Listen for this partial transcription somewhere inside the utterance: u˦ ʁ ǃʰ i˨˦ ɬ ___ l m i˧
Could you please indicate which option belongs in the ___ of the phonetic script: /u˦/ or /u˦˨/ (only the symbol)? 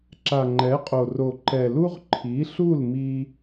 u˦˨